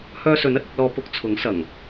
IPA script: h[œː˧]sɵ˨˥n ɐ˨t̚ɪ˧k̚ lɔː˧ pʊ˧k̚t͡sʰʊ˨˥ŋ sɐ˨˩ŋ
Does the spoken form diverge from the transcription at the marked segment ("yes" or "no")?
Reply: no